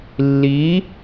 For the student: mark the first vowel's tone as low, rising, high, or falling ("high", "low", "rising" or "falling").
rising